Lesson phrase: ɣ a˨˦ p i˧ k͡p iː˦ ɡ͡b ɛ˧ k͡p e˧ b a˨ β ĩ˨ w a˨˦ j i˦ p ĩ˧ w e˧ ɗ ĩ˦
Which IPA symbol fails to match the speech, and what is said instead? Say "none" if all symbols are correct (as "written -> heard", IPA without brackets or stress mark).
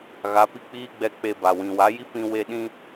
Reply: β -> w